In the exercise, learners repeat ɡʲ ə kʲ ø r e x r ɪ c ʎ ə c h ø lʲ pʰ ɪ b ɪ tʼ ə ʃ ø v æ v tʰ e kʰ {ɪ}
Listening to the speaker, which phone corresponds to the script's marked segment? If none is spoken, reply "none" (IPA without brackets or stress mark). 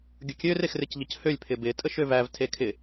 ɪ